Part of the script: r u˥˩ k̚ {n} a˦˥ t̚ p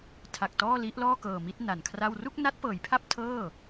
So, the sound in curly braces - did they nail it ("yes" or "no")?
yes